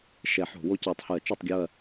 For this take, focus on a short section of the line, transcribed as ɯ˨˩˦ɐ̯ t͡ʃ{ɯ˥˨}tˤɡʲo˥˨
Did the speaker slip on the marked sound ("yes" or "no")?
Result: yes